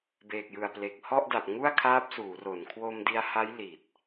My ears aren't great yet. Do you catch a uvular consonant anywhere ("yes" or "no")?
no